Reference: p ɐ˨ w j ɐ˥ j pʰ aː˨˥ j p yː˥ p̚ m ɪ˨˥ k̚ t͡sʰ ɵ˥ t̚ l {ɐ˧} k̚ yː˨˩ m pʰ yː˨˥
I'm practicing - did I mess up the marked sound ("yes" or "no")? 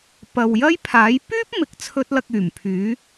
no